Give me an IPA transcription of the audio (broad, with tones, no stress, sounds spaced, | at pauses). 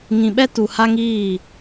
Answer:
ŋ ĩ˨ ɓ ɛ˦ t u˨ h a˦ ŋ iː˦˨